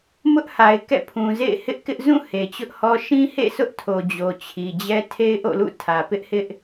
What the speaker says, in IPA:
m ʊ˦ ʔ h a˨ ɪ̯ k ɛ̰˦˨ pʰ ũ˨ z ḛ˦˨ ɪ̯ h ɪ˦ ʔ k ɪ˦ ʔ z ũ˦˨ h e˨ t͡ɕ ʊ˦ ʔ h ɔ˦ ʃ ĩ˦ h ḛ˦˨ s ʊ˦ ʔ tʰ o˨ d͡ʑ o˨ t͡ɕʰ i˨ d͡ʑ ɛ˦ tʰ e˦ ɪ̯ ʔ o̰˦˨ l ṵ˦˨ tʰ ä˨ p ɪ˦ ʔ h ɪ˦ ʔ

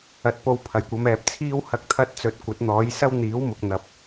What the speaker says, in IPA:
ɐ˨ t̚ p o˧ w pʰ ɐ˨˩ j kʷ ɐ˨˧ m ɛː˨ p̚ t͡sʰ iː˥ w h ɐ˧ k̚ t̪ʰ ɐ˧ t̚ t͡s ɵ˨˥ t̚ kʷ ɐ˨˥ t̚ n̪ ɔː˨˥ j s ɐ˥ w n̪ iː˨˥ w m ʊ˨ k̚ n̪ ɐ˨ p̚

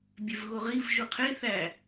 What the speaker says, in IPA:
bʲ e v ɣ o ʁ i v ʒ u qʰ e θ æ

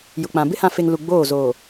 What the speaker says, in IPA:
j ʊ˨ k͡p ã˨ b ɪ˦ h ã˨ f e˨ ŋ l u˨ ɡ͡b oː˦˨ z oː˨

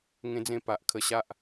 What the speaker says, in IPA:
ŋ ẽ˧ d͡z ẽ˧ p a˨ ʔ kʰ ə˧ ɕ a˦ ʔ

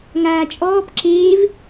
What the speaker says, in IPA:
ŋ aː t͡ʃʼ ɔː p ǁ eː v

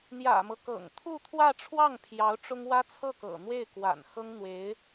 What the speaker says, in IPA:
n̪ j ä̰˨˩ m ɤ˦ k ɤ̰˨˩ ŋ t̪ʰ u˥˧ t̪ʰ w ä˥˧ ʈ͡ʂʰ w ɑ˥˩ ŋ pʰ j ɑ˧˥ ʊ̯ ʈ͡ʂ ʊ˥ ŋ w ä˥ t͡sʰ ɤ˥˩ k ɤ̰˨˩ n̪ w e˥˩ ɪ̯ k w a̰˨˩ n x ɤ˥ ŋ n̪ w e˧˥ ɪ̯

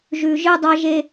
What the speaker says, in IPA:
ʒ ʉ˨ ʒ ɨ˦ dˤ ɐ˦ ʒ e˦

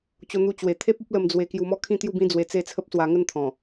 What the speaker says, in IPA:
t͡ɕ o˧ n̪ u˧ t͡ɕ w e˨˩ t̪ʰ e˦ p̚ o˦ p̚ l ə˧ m d͡z w e˧ k j u˧ m ɔ˦ kʰ ĩ˥˧ t̪ j u˥˧ b ĩ˦ d͡z w e˧ t͡s e˥˧ t͡sʰ ə˦ p̚ s w a˧ ŋ ə˥˧ n t̪ʰ ɔ̃˨˩

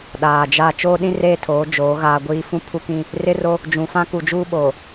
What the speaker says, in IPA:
ɗ aː˨ d͡ʒ a˦˨ t͡ʃ oː˦ ɗ ĩ˦ r eː˦˨ tʰ oː˨˦ d͡ʒ oː˨˦ ɣ aː˦ ɡʷ iː˦ f ũ˦ pʰ u˦ k ĩ˦ | r ɪ˦ r o˦ | d͡ʒ ũ˨ f ã˦ k u˨ d͡ʒ uː˦ ɓ oː˨

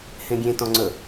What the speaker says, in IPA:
h ẽ ɡʲ ẽ t ɔ̃ ŋ͡ǀ ɵ

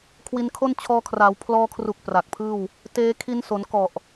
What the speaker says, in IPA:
kʰ w i˧ n kʰ o˥˩ n t͡ɕʰ ɔː˧ kʰ r a˩˦ w pʰ l ɔː˧ kʰ r u˨˩ k̚ p r a˨˩ k̚ pʰ ɯː˥˩ w | t eː˦˥ kʰ i˦˥ n s o˩˦ n k ɔ˨˩ ʔ

